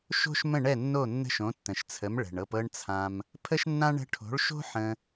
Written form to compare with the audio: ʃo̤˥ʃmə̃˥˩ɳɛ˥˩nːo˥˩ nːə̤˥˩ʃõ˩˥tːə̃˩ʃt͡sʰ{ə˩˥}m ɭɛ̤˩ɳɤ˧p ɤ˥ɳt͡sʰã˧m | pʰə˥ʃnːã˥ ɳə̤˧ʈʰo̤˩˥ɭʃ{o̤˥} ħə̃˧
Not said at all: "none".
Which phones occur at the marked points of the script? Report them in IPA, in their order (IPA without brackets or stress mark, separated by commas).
ə˩˥, o̤˥